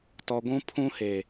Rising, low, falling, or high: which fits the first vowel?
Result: low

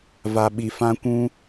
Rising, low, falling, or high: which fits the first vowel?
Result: low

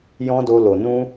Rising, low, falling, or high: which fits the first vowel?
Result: high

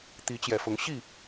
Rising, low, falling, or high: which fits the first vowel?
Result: rising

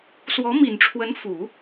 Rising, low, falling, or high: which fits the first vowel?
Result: rising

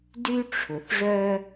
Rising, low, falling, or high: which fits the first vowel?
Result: high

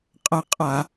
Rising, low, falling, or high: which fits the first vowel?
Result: falling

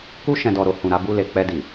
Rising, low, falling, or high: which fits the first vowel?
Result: high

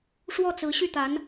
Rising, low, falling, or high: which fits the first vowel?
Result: falling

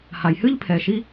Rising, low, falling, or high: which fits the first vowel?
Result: low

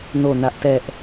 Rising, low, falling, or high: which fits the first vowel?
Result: falling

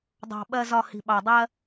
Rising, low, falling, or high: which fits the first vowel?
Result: low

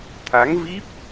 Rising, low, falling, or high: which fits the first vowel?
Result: rising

